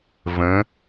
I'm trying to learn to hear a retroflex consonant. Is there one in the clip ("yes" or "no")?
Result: no